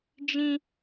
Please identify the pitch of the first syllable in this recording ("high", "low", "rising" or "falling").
high